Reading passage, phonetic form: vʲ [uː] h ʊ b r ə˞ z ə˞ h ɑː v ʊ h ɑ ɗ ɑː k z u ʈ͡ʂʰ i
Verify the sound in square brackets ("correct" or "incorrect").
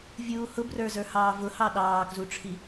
correct